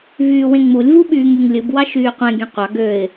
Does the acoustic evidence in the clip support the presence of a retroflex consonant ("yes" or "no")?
no